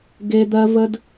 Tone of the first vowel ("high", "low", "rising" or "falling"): high